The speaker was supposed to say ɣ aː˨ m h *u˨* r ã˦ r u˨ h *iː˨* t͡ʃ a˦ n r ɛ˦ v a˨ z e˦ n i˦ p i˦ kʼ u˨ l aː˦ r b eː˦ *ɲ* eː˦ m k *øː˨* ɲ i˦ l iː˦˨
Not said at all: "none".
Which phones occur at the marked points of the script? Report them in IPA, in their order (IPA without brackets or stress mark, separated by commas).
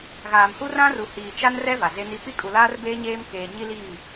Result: u˦, iː˨, ɲ, eː˨